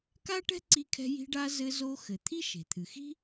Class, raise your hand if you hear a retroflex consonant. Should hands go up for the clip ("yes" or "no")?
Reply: yes